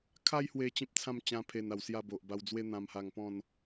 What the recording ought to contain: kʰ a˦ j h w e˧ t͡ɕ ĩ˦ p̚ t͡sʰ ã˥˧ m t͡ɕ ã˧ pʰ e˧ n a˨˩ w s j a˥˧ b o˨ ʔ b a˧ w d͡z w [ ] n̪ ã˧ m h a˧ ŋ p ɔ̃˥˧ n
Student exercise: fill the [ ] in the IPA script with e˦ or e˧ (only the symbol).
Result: e˦